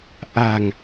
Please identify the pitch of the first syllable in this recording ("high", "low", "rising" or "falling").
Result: low